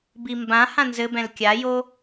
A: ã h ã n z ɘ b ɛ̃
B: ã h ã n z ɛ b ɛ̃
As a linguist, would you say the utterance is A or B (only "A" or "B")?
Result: A